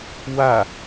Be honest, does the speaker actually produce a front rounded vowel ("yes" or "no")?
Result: no